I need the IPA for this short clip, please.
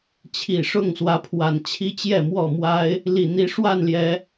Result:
t͡ɕʰi˨˩ʂʊ˥˨ŋswä˨˦pʰwa˨˩n t͡ɕʰi˦t͡ɕjɛ˥˨mwɔ˥˨mwa˦ɪ̯ | li˨˩n̪i˨˦ ʂwa˥˨nljɛ˨˦

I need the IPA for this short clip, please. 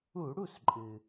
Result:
u˧˩˧ ɽu˥˩sǃʼɨ˩

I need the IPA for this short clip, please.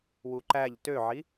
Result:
wuǃæʎ tøʕi

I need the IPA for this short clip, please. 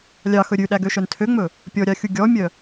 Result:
lʲɑxɵ ɾʲʉɗæɡøʃœn tʰøŋ͡mɵ | pʲɔɾʲɑxʲu ɡʲɔmʲœ

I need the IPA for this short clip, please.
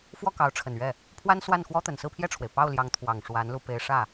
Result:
fwɔ˥˩kɑ˧˥ʊ̯ʈ͡ʂʰə˨˩nɥɛ˥˩ | pʰwa˥nswa˥˩nxwɔ˥ t̪ə˨˩nsɹ̩˥˧pʰjɛ˥˩ʈ͡ʂʰwe˩ɪ̯ pɑ˥˩ʊ̯ljɑ˧˥ŋt̪ʰwɑ˨˩ŋ ʂwa˧˥nlu˧ pe˥ɪ̯ ʂä˥˩

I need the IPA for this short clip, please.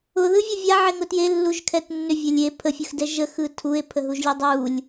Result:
ʊðɯvʲʊ vʲaʕeŋʊ tjelːuʒkʰɛt nːʏvʲɛ lʲe pʰəfʲɯxdɛ ʒəxɯ tʰue̯pʰəɦuʒlʲu dˤulʲ

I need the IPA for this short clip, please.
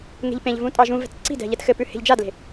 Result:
ŋe̤ʎpẽʎvũ tʼɑʒũvɛ̤t ǀi̤dɛ̤ ʎɛtxɘpʉ he̤ʎd͡ʒadle̤

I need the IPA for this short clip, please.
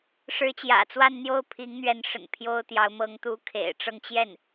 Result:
ʂɻ̩˧˥t͡ɕjä̰˨˩t͡swa˥˧n n̪jo˥˩ʊ̯pʰi˧˥ŋn̪ɥɛ˧˥nʂə̰˨˩n pʰjo˥ʊ̯t̪jɑ˧˥ʊ̯ mɤ˧˥ŋt̪u˧˥ kʰḛ˨˩ɪ̯ʈ͡ʂɤ˥˧ŋ t͡ɕjɛ˥˩n

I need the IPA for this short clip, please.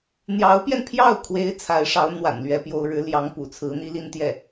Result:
n̪jɑ˧˥ʊ̯pjɛ˧npʰjɑ˥˩ʊ̯kʰwe˧˥ɪ̯ t͡sʰa˧˥ɪ̯ʂɑ˧˥ʊ̯n̪wa̰˨˩n lɥɛ˥pjo˥ʊ̯ ɻɻ̩˧˥ljɑ˧˥ŋpṵ˨˩ t͡sʰɹ̩˧˥n̪i˥ li˥nt̪jɛ˥˩

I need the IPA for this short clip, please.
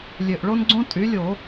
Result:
lʲø˨˩ʔɭo˦nɡ͡ǀõ˦ tʼy˩˥lʲo˧˩˧

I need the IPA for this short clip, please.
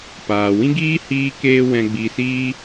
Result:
paː˨ wĩ˦ɡiː˦ hiː˦keː˦ wɛ̃˧ɡ͡bi˧siː˦

